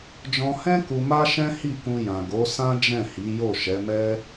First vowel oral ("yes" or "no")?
no